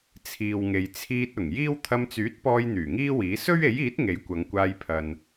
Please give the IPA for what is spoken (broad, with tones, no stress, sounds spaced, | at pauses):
t͡sʰ iː˨ w ŋ e˨ j t͡sʰ iː˧ t̚ ʊ˨˩ ŋ j iː˥ w t̪ʰ ɐ˧ m t͡s yː˨˥ t̚ p ɔː˧ j n̪ yː˨˩ ŋ iː˥ w iː˨˥ s ɵ˥ ɥ e˨˥ j iː˨˥ t̚ ŋ e˨˥ j kʷ ɐ˨˧ ŋ kʷ aː˧ j pʰ ɐ˨ n